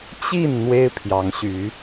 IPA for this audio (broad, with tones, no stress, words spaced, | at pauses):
t͡ɕi˥˨n n̪we˦ɪ̯pʰjɑ˨˦ŋɕy˨˦